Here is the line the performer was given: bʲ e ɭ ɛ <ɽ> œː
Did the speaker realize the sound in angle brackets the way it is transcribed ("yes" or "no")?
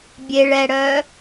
yes